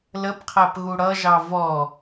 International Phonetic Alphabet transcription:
l ə p qʰ æ p ɣ u ɽ ʌ ʒ ɑ v ɔ

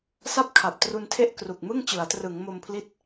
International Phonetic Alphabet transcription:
s a˥˩ p̚ kʰ a˨˩ p̚ t r u˧ n tʰ e˥˩ ʔ k r u˨˩ k̚ m ɯ˥˩ ŋ t͡ɕ ɯ˩˦ a̯ t r ɯ˩˦ ŋ m o˧ m pʰ l i˦˥ t̚

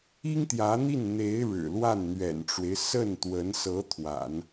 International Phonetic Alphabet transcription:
i˥ ŋ t̪ j ä˧˥ n̪ i˥˩ n n̪ e˧˥ ɪ̯ ɻ ɻ̩˨˩ l w a˥˩ n n̪ ɥ ɛ̰˨˩ n ʈ͡ʂ w e˦ ɪ̯ s ə˥˩ n t̪ w ə˧˥ n s ɤ˧˥ t̪ʰ w a̰˨˩˦ n

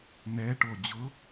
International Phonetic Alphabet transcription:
n ɛ ʈ o d͡ʑ ʊ

